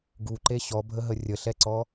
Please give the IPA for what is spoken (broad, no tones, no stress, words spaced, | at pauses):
ɡuǃe ɕɔbʱəɦə rʲəɬɛǀɔ